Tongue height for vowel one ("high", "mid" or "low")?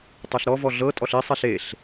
mid